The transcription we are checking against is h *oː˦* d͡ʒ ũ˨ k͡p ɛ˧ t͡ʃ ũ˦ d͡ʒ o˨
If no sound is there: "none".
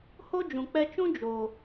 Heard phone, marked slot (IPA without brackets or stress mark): o˦